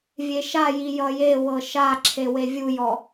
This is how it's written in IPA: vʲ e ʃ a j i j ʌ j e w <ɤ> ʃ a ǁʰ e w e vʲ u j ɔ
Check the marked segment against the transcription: correct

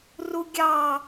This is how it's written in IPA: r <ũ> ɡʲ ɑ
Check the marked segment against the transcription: incorrect: u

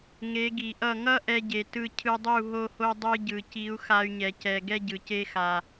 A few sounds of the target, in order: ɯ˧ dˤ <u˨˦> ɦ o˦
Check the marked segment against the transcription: incorrect: u˦˨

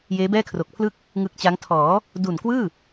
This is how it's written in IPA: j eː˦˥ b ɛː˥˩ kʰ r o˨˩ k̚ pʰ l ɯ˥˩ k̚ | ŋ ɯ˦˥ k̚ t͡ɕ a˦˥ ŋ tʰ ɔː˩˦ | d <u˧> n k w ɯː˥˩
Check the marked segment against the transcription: incorrect: u˨˩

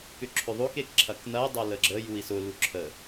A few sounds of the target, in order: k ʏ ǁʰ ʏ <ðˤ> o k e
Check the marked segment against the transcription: correct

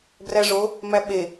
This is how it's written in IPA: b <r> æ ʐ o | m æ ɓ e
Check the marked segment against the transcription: correct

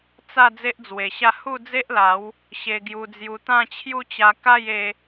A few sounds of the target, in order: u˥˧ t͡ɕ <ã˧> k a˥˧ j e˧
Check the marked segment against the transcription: incorrect: a˧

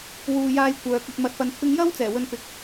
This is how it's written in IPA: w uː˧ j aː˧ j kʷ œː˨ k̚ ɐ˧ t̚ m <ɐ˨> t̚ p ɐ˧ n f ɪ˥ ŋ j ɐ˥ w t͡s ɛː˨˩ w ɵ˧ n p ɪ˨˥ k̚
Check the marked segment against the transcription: incorrect: ɐ˧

